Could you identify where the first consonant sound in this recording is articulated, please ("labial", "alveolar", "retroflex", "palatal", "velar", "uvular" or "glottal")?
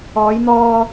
palatal